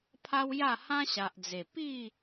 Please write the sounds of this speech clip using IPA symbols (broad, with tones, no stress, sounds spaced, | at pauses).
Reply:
pʰ a˦ w j a˥˧ h ã˦ ɕ a˨ ʔ d͡z e˨˩ p i˥˧